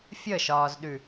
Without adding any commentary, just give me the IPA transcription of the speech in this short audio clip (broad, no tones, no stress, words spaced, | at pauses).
fʲəʃɒːzɗʉ